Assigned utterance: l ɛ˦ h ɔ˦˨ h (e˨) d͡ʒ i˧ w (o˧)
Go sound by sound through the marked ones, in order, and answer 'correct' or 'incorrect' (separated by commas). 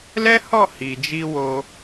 incorrect, correct